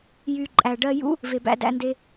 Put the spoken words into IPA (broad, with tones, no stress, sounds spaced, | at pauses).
j y˨ ǃʼ æ˨ ɖ ɜ˧ j ṵ˦ | v e˨ b æ̰˧ d æ̰˧ n d e˧